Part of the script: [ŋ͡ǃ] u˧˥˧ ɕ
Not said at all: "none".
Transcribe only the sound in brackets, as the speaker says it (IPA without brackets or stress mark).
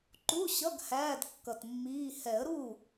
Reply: ǃ